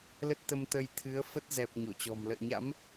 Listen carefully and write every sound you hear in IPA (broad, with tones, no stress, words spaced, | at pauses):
lə˦˥t̚t̪ə˧mt̪ə˧j t̪ʰɨ˨˦ə̯fə˦˥t̚ zɛ˨˩p̚ ɲo˧˩t͡ɕɔ̤˨˩m lə̰ː˧˨ɲa̰˧˥m